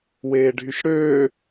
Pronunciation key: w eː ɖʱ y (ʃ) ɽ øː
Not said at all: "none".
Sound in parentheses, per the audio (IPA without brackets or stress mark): ʃ